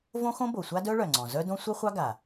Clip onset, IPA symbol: v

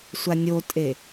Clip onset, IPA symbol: sʷ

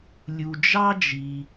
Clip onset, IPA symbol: lʲ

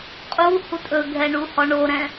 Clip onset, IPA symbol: qʼ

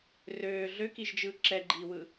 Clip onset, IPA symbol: r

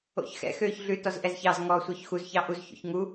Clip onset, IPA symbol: o̰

